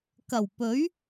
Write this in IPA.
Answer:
k ɐ˨˩ w p ɵ˨˥ ɥ

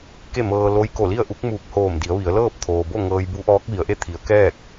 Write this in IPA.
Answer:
k e˥˨ m ɤː˧ l o˧˥ j k o˧˩ l i˥˨ ə̯ ʔ u˧˥ k̚ m uː˧˩ k̚ h oː˧˩ m d i˩˧ ə̯ ʋ i˩˧ ə̯ l ɤː˥˨ p̚ t̪ʰ oː˩ b o˥˨ ŋ ɤː˧ j b u˧˥ ʔ ɔː˧˥ k̚ ʋ i˩˧ ə̯ ʔ e˥˨ t̪ʰ i˩˧ ə̯ k ɛː˥˨ k̚

